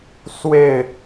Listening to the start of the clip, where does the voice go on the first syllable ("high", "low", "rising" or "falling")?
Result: falling